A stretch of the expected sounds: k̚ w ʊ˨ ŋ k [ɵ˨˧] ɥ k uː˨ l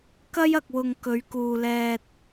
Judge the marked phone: correct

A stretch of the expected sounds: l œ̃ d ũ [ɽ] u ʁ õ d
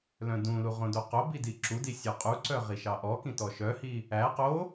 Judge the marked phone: incorrect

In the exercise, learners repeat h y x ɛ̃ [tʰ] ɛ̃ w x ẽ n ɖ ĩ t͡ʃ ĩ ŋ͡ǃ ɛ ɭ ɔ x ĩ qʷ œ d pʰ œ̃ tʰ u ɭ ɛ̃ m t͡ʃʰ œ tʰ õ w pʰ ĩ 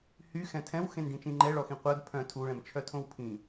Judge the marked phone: correct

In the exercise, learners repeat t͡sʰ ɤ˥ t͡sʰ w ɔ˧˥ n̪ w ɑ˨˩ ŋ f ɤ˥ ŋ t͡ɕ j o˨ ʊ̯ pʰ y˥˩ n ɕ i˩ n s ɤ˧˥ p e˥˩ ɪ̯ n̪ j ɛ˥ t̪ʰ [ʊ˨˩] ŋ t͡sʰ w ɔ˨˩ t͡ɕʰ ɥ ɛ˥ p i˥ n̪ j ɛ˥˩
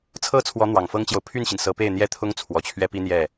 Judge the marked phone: incorrect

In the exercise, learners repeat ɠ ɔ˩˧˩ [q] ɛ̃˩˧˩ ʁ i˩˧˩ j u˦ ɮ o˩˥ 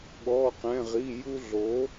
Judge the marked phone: correct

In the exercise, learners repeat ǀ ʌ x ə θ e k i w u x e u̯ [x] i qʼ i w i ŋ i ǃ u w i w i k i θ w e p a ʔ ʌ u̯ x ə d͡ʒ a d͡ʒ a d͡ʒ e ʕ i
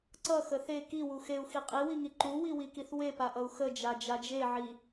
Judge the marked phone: correct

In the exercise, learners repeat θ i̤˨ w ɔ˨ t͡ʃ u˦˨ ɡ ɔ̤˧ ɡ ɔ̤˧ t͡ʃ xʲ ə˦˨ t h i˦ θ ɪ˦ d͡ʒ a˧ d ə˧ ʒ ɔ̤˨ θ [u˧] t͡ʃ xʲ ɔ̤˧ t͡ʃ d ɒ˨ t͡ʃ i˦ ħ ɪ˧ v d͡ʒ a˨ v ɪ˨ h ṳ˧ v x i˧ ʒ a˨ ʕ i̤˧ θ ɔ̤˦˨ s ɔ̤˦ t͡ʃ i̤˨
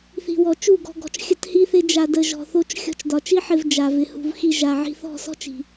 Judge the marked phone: incorrect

